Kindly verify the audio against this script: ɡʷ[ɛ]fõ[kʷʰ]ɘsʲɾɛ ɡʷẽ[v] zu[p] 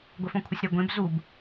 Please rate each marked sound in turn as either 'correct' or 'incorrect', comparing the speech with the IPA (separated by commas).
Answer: correct, correct, incorrect, incorrect